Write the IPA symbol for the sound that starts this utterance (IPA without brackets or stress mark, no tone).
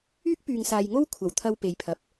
yː